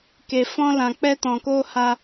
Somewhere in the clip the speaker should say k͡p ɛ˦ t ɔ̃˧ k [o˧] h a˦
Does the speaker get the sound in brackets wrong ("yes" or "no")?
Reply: yes